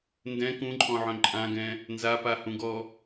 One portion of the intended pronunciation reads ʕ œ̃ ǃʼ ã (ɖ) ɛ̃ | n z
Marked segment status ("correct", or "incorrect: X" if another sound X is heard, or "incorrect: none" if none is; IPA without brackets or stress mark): incorrect: ɡ